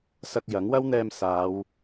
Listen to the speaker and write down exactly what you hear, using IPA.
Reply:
s ɐ˧ k̚ j ɐ˨˥ ŋ w ɐ˥ w n̪ ɛː˧ m s aː˨˧ w

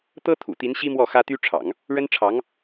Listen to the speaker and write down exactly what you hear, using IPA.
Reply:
t̪ ɤ˥ t̪ʰ ṵ˨˩ t̪ i˧˥ n ɕ i˥ m w ɔ˥˩ x ä˥ t̪ y˥ ʈ͡ʂʰ ɑ̰˨˩˦ ŋ | ɻ ə˥ n ʈ͡ʂʰ ɑ˧˥ ŋ

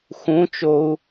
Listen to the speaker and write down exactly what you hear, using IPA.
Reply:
x ũ t͡ʃ o u̯

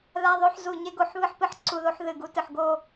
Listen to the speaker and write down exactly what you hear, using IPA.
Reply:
ð a˧ ðˤ o˧ ħ z u˨˩ ɲ e˧ ɡ o˨˩ ħ β ɨ˧ ħ p ɨ˨˩ ħ ǀ u˨˩ ð o˧ ħ ð ɨ˨˩ ɡ u˧ t ɨ˨˩ ħ ɡ o˧

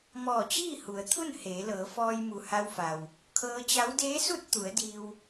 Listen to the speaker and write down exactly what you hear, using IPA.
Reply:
m ɔː˧˩ t͡ɕ iː˥˨ h u˩˧ ə̯ t̪ʰ u˥˨ n h eː˩˧ l ɤː˩˧ f ɔː˧ j m u˩ h a˧ w f a˩ w | kʰ ɤː˧ t͡ɕ a˧˥ w d eː˧˥ s u˥˨ t̚ t̪ u˩˧ ə̯ d iː˧ w

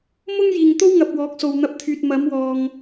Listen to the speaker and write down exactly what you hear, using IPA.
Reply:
m ʊ˥ ŋ j iː˨ ŋ t̪ o˥ w ŋ ɐ˨ p̚ w ɔː˨˥ k̚ s o˨ w n̪ ɐ˧ p̚ t̪ʰ yː˨ t̚ m ɐ˨˥ m w ɔː˨ ŋ

